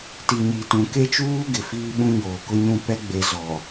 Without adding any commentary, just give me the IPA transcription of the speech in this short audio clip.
ti˨ɲi˨tũ˨ ke˦t͡ʃuː˦ ɡɪ˨fiː˦ɓũ˦ ɲoː˨kʊ˦ɲũ˦˨ pɛ˦ɡ͡be˨ zɔ˨

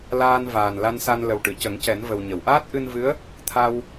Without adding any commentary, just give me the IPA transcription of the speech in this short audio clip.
laː˧n vaː˨˩nla˧nsa˧n lə˨˩wʈɨ˨˩˨cə˨˩˦ŋcɛ˨˩˦n və˨˩wɲə˨˩˨w ʔaː˦˥t̚ʔɨ˧nvɨ˧˥ə̯ | t̪ʰa˧w

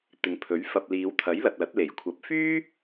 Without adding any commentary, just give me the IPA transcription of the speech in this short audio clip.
t̪ɪ˨˥ŋpʰɵ˨˥ɥfɐ˧p̚ liː˨˧wt̪ʰɐ˨˥jlɐ˨t̚lɐ˨˥t̚ le˨˩jkʷʰɐ˨p̚fyː˥

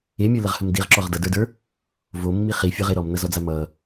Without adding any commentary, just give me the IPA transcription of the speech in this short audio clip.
emʲə˞ləʁhəm diʁǁɔʁ dʌdə˞də˞ | vomːi χifʲə˞ʁe ɾɔmnʌzɔd͡za mʌ

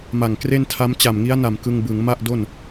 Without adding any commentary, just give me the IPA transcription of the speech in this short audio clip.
ma˨˩ŋkre˥˩ntʰa˦˥m t͡ɕa˨˩mŋi˦˥a̯na˨˩m kɯ˧ŋbɯ˩˦ŋma˥˩ʔdo˥˩n

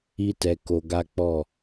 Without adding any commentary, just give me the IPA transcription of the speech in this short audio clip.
i˦tɛ˧ ko˧ɡa˦k͡pɔ˦˨

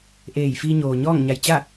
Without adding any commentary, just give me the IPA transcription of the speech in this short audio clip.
ʔeː˧˩j fiː˧ɲoː˩ɲɔː˥˨ŋɲa˧˩j t͡ɕa˥˨

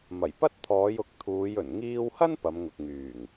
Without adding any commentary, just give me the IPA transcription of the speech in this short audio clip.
mɐ˨˩jpɐ˥t̚t̪ʰɔː˨˧j ʊ˨˥k̚t̪ʰuː˨˧j ɵ˨˩nŋiː˥w hɐ˥n pɐ˨˧mŋʊ˨k̚ŋyː˨˩ŋ

